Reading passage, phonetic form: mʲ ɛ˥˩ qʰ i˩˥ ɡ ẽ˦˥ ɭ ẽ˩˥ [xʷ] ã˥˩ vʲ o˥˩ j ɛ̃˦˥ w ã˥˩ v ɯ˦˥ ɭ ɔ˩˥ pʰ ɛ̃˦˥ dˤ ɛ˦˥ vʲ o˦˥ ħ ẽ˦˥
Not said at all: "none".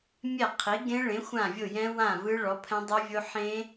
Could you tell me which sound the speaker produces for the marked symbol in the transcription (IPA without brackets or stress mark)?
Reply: xʷ